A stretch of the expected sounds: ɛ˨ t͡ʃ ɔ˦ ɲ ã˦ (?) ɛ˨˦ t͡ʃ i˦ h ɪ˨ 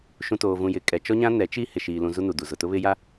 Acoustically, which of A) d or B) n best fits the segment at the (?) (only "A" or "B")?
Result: B